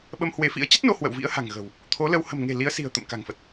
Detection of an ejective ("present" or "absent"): absent